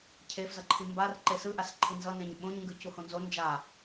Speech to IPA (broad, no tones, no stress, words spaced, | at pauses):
cʰefzʌǃʰi mbar ǃesɯʔasǃʰi nzʌnẽɲ ɓõɲŋɡɯ cuhõnzo nd͡ʒa